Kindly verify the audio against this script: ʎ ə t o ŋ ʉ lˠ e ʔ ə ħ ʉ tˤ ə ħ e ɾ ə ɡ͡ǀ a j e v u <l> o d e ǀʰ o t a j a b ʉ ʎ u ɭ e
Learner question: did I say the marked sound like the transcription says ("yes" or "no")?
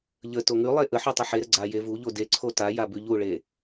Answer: no